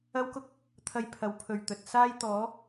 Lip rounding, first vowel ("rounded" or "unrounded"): unrounded